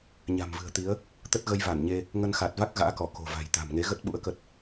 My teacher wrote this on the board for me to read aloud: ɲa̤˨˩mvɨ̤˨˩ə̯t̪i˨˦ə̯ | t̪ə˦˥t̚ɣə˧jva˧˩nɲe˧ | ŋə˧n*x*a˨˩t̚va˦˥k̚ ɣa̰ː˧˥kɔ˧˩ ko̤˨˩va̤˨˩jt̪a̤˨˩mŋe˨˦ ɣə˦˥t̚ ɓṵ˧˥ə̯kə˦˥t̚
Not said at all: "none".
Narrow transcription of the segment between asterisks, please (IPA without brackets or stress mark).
x